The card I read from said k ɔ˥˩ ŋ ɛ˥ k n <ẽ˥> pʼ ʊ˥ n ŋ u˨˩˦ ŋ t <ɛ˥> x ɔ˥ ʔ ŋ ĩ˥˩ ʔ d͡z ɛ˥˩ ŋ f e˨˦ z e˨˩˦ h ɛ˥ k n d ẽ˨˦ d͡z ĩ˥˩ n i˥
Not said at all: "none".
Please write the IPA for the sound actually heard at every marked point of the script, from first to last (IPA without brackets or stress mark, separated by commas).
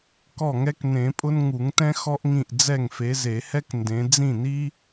ẽ˨˩˦, ɛ̃˥